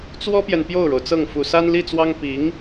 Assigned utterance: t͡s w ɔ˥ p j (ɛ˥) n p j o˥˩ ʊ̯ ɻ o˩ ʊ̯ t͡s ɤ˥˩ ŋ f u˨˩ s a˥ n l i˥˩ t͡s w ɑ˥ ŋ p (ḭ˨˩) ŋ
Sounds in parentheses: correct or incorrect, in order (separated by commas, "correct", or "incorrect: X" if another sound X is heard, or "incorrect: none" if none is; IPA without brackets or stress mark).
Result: incorrect: ɛ˨, incorrect: i˧˥